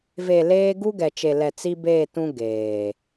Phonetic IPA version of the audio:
ve˨ leː˦ ɡu˦ɡɛ˨t͡ʃe˨lɛ˨ t͡si˦beː˦˨tũ˦ ɡeː˨

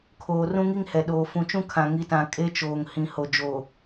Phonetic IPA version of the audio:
kʰoː˨ rũ˦ŋi˦ŋhɛ˨ ɗoː˨fũ˨t͡ʃũ˦ kʰã˨ŋi˨˦tã˨ kʼe˦t͡ʃoː˨ŋhĩ˨ho˨ d͡ʒo˨

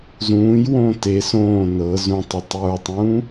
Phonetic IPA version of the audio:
zũːj wõːte sõː nɤ zũtˤetˤ jə˞tˤũː

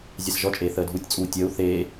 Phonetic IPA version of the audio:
zʲasʒɔt͡ʃʼeː θəːdʱutʲt͡sʼuː tʲəːu̯ θeː

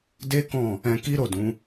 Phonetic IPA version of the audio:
de˦kɔ̃˦˨ | ɛ̃˧ki˦ɾo˦˨dũ˨˦

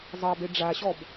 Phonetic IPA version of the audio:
zˤɑbe ɖ͡ʐaɕɔb

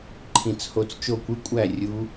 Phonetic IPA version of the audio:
ǃʰĩ˨˩˦t͡sho˧˩t͡s t͡ʃo˧˩kʷɯ˨˦ kʷʼæ˥˩ rʲu˨˦

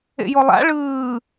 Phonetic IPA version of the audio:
ḛjolˠa̰ ɭɯː

